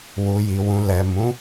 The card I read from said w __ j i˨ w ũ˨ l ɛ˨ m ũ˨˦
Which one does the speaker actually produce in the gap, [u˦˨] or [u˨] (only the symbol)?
u˨